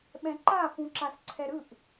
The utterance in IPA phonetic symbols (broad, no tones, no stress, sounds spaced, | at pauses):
ɓ ɛ̃ ǃ a f ũ ǁ a s ǀʰ ɛ ɾ ɯ ʔ